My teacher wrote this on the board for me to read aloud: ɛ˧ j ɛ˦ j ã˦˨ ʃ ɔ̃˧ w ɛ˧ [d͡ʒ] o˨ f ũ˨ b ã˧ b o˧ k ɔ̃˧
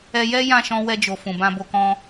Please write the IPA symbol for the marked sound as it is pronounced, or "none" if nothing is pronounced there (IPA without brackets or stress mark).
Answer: d͡ʒ